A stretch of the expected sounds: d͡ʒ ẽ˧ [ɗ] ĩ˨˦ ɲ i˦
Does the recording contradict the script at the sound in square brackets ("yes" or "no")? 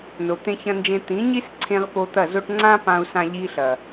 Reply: yes